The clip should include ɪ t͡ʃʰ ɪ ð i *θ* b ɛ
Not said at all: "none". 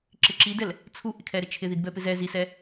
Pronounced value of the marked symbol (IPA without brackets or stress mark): d